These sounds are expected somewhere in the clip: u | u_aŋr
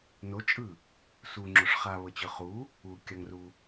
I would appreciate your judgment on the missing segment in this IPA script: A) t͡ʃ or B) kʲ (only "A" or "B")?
B